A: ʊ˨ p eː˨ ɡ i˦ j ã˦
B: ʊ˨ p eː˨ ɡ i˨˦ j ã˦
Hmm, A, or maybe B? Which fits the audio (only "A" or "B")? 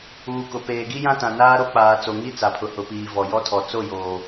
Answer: A